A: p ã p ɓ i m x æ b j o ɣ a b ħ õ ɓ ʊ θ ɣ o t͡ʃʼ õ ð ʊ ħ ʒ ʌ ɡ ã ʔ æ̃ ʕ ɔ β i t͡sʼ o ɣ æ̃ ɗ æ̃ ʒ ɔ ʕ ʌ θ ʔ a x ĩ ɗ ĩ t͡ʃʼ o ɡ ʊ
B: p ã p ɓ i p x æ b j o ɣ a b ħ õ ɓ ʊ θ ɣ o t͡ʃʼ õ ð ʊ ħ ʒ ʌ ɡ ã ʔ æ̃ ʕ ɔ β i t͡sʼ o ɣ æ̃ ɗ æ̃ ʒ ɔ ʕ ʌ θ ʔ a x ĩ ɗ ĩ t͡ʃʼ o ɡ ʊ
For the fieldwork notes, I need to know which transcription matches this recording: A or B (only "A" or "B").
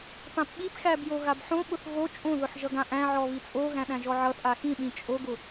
B